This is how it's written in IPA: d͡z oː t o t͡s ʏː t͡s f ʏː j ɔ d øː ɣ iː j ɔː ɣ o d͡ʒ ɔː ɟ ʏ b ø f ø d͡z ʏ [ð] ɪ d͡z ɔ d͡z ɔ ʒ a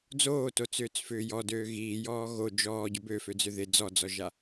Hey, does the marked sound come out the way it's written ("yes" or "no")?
yes